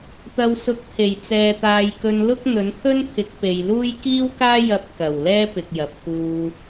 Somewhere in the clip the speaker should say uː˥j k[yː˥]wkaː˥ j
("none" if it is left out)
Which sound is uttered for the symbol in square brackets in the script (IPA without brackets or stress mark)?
iː˥